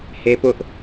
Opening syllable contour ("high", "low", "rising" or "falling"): high